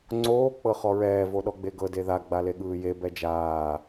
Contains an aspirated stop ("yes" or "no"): no